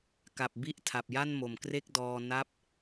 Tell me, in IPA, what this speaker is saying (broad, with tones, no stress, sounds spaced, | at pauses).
k a˨˩ p̚ b i˦˥ ʔ tʰ a˨˩ p̚ j a˥˩ n m o˨˩ m k r e˥˩ k̚ d ɔː˧ n a˦˥ p̚